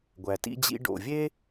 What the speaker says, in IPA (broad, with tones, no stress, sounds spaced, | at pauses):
ɡʷ æ˩ t ḭ˧ d͡ʑ ḭ˧ ɖ o̰˩ vʲ e˥